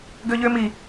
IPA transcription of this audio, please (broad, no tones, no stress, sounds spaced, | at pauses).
ɡ ø ʎ ø m i